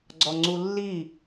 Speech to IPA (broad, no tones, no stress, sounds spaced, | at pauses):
ɡ͡ǀ ɔ ŋ͡ǀ u lː i